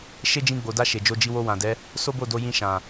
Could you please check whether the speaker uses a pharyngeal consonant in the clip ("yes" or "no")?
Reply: no